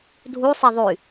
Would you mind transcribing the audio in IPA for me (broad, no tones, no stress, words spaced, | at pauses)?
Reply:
dʱusˤe ðˤy